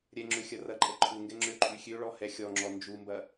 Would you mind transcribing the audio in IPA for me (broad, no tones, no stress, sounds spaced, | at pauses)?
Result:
ɾʲ ɛ ŋ͡ǁ ø xʲ ɐ r ɐ ǃʼ ɛ ǃʰ u ŋ ɡ ɛ ŋ͡ǁ ø ǃʼ y xʲ ø ɭ ɔ h ɛ xʲ ɔ ŋ͡ǁ ɔ n d͡ʒ u m b ɐ